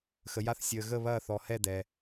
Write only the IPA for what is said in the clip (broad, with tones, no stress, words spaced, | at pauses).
xə˩ja˧˩θ sʲəː˩ ɣə˧˩βɐː˧˩θɔ˩hɛ˧˩ dɛ˩